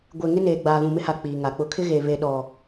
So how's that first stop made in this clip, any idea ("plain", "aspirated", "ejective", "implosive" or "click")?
plain